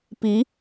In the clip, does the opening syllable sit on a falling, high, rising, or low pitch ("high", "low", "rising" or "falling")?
rising